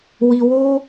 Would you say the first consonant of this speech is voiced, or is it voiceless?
voiced